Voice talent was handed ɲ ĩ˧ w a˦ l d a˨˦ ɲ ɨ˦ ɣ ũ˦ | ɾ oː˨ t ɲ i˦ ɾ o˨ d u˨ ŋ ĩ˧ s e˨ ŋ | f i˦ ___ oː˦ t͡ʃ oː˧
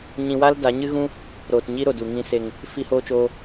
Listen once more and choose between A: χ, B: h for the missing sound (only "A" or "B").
B